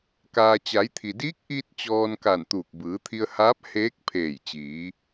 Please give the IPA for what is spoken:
k aː˧ t͡ɕ a˩˧ j t̪ʰ i˩ d iː˧˥ k̚ ʔ iː˧ t̚ t͡ɕ ɔː˧ n k a˧˩ n t̪ uː˧˩ k̚ b ɯː˩˧ t̪ʰ i˧ ə̯ h aː˧˥ p̚ h eː˧˥ k̚ pʰ eː˧˩ j t͡ɕ iː˩˧

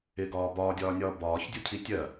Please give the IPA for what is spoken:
ɪ ɡ ɒː b ɒː dʲ ɒː nʲ ɒː b ɒː ç dʲ u cʰ i tʲ ɜ

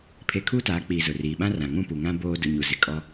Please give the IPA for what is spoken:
pʰ e˦ kʰ uː˦ t aː˨˦ k͡p i˨ z ʊ˨ r iː˨ ɓ ã˦ r ã˨ ŋ ũ˦˨ p u˨ ŋ ã˦ b oː˦ d ʊ˦ ɲ u˨ z ɪ˨ kʼ ɔ˦

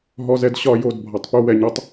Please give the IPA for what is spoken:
ɦ ɔ˨ z ɛ˨ d ɕ ɒ˦˨ j o˦˨ d bʱ ɒ˨ tˤ p u˦ w ɛ˨ ɲ ɒ˦ tˤ

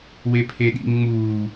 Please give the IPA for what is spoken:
w e pʰ e ɗ ḭ ŋ ŋ͡m uː

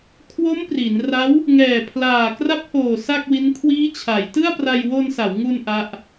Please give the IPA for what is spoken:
kʰ w o˦˥ m p r i˩˦ n r a˦˥ w | ŋ ɛː˨˩ pʰ l aː˨˩ k r a˦˥ p̚ h oː˨˩ s a˥˩ k̚ w i˦˥ n kʰ w iː˦˥ t͡ɕʰ a˩˦ j t ɯ˥˩ a̯ p r a˧ j w o˧ n s a˩˦ w ŋ u˧ n ʔ a˦˥ ʔ

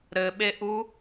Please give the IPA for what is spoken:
ɾ ɘ ɓ e ʔ u

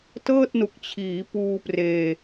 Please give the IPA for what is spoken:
t ɤː˥˩ t̚ n u˨˩ k̚ t͡ɕʰ iː˩˦ p uː˧ p r eː˧

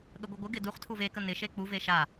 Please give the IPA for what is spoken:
ɠ ə ɡʷ ɪ ɡʷ ɪ ɡ ɪ d u χ tʰ u v e k ə n ɪ ʃ e k͡p u v e ʃ a

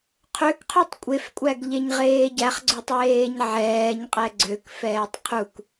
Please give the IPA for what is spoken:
qʰ ø k qʰ y tˤ kʷʼ e f kʷʼ æ ɡ ʎ e ɲ ʁ eː ɟ æ χ ɡ͡ǀ o tˤ j eː ɲ ʕ ɛː ɲ qʼ ɛ ɡ͡ǀ ø k f ɛː tˤ qʰ u k

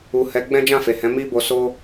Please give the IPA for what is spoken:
u˨ h ɛ˨˦ ɡ͡b ɛ̃˦ d͡ʒ ã˦˨ f e˨ h ɛ̃˨˦ m i˦ b o˧ s o˦

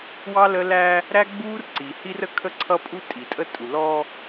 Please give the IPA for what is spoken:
w ɑ˦ l ə˦ l æ˦ | ɾ æ˦ ɡ͡b uː˦ r ǀ i˨ h i˦ r ə˦ kʰ ə˦ ǀʰ ʌ˦ pʼ u˦ tʼ i˨ tʼ ə˦ tʼ u˨ l ɔ˦

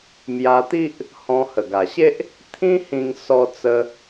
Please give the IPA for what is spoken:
m j a˧ t̪ i˦ ʔ | h ɔ̃˧ h ə˨˩ ɡ a˨˩ ɕ e˦ ʔ | t̪ʰ ĩ˦ h ĩ˧ ŋ s ɔ˧ t͡s ə˧

